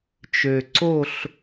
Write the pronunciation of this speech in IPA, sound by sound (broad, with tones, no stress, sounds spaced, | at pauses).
t͡ʃ ø˨˩ ǀ o˥˨ ɬ